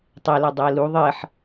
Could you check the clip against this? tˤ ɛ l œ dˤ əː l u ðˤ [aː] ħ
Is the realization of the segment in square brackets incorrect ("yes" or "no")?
yes